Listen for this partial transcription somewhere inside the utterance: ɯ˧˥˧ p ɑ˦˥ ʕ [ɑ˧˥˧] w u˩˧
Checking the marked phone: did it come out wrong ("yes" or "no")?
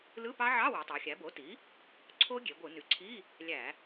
no